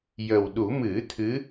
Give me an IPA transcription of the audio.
jə˨˩wɗu˨˩˦ mɨ˨˩˦ t̪ʰɨ˧˥

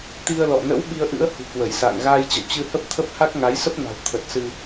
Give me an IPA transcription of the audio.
t̪i˧ə̯lɔ̰˧˨ nə̰˧˥w ɓi˧ə̯ʔɨ̰˧˥ə̯ hṳ˨˩kwə˧˩jsa̰ː˧˨ŋ ɣaː˧jt͡ɕə̰˧˨w t͡ɕɨ˧hə˦˥p̚t̪ʰə˦˥p̚ ha˦˥k̚ŋa˨˦j sə˦˥p̚na̤˨˩w t̪ʰə˨˩t̚ sɨ˧

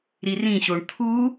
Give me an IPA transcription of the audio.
ɾirĩɕoɳ t̪ʰu

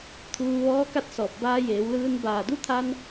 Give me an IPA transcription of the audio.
t̪ʰuː˧ʋɔː˧˥ ka˧˥t̚sɔː˧˩p̚ baː˧jeː˩˧wlɯː˧n baː˧˩du˧˥t̪ʰa˧n

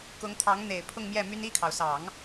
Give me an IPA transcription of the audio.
kʊ˧˥ŋt̪ʰɑ˧˥ŋ n̪e˨˩ɪ̯pʰʊ˥˧ŋmjɛ˥˩my˥n i˥˩kʰɑ˩ʊ̯sɑ˨˩˦ŋ

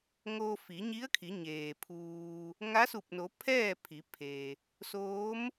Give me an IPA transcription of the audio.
ŋoː˧fi˩˧ɲi˧˥ə̯kʰi˩˧ ɲeː˩pʰuː˧ | ŋa˧˥su˧˩p̚no˩˧ pʰɛː˥˨ pʰi˩˧ pʰe˩ | soː˧˥m

